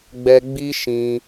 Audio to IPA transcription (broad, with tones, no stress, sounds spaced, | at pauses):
ɡ͡b ɛ˦ ɡ͡b i˦ ʃ ĩ˧